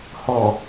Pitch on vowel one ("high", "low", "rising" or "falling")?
low